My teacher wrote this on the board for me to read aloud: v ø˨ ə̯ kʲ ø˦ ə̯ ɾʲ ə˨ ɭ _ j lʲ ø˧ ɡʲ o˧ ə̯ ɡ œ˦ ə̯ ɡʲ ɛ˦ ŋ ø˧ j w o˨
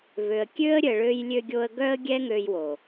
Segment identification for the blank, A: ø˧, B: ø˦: A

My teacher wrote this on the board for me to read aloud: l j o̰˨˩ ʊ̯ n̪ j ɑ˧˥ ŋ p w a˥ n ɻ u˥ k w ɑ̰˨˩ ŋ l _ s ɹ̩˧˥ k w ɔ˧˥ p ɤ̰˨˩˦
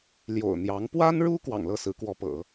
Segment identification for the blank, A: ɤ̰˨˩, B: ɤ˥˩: B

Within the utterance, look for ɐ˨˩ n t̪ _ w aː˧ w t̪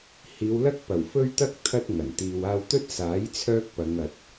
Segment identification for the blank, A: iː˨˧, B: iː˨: B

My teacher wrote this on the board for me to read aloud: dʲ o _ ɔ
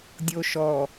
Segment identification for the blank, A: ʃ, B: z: A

